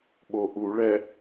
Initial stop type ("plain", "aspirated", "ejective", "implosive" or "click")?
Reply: implosive